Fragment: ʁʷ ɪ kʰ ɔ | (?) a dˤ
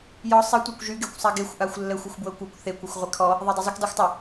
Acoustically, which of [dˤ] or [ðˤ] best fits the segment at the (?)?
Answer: ðˤ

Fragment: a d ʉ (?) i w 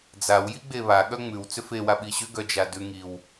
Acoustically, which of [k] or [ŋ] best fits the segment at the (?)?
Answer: ŋ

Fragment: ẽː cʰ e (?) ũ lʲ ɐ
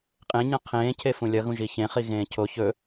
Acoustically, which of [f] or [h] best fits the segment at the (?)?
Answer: f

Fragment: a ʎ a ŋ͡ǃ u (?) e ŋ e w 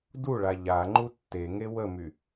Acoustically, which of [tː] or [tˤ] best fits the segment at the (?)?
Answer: tː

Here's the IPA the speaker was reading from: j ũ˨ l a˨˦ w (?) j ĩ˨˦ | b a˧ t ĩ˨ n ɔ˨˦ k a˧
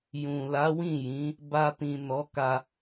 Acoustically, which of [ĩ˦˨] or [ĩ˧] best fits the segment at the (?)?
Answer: ĩ˦˨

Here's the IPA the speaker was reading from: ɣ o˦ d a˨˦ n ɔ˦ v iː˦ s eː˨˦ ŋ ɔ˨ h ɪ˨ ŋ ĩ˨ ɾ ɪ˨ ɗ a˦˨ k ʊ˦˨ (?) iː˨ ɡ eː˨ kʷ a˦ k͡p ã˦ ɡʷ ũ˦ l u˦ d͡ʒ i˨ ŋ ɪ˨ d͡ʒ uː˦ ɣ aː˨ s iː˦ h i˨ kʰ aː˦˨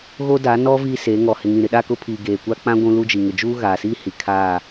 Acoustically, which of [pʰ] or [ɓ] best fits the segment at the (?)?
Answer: pʰ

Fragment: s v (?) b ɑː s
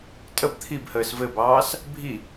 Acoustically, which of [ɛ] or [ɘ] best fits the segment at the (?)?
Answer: ɘ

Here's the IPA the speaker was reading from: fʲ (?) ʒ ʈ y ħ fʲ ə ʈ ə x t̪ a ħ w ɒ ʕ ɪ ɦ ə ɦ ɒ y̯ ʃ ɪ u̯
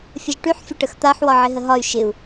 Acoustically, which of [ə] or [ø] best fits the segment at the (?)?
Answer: ə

